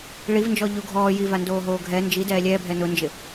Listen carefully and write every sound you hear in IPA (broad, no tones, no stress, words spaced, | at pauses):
ɭivnd͡ʒɔ ʎuɡʱɔː jivandoːɦoː ɡʱɛ nd͡ʒidɛː lʲɛːbʱɛ nʊnd͡ʒɪ